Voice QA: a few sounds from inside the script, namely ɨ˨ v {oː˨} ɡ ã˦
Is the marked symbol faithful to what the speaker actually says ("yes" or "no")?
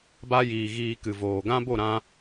yes